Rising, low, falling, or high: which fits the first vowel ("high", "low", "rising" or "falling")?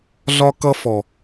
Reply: high